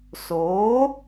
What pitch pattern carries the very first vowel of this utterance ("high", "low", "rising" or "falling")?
rising